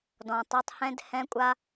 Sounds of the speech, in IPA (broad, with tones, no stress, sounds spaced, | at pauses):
d ɔ̃˨ tˤ u˨ tˤ h ɛ̃˦ d h ɛ̃˦ kʷʼ a˦